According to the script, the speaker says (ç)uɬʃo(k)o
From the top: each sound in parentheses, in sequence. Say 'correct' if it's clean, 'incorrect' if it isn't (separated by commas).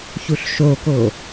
correct, correct